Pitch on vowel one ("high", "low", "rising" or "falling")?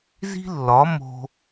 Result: high